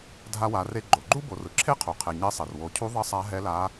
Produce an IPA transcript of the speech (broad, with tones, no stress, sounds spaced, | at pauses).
dʱ a˧ w a˩˧ r e˧ ɡ͡ǃ o˩ ɡ͡ǃ u˥ b o˩˧ r ɯ˩ ǁʰ e˥ qʰ u˩ qʰ e˩ ɲ e˧˥ sˤ e˩ r w o˩˧ cʰ u˧˥ ðˤ ʌ˧˥ sˤ a˧˥ ɦ ɛ˧˥ l a˧˥